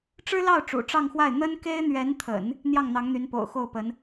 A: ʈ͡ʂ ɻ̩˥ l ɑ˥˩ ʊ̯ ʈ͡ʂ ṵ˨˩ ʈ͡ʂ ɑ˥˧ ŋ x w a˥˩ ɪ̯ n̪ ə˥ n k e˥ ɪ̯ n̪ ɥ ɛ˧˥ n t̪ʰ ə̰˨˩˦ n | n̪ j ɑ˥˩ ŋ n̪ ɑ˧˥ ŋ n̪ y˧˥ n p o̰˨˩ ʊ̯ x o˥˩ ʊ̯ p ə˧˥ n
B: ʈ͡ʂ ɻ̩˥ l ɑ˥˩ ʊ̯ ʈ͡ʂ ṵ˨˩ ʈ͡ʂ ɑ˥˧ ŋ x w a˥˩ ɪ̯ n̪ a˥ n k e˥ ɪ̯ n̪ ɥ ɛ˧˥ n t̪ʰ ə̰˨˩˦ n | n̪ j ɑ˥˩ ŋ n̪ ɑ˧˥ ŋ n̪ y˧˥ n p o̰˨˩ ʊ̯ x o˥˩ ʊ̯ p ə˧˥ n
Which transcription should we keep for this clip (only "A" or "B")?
A